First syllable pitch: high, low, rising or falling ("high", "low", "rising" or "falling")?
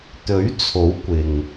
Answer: rising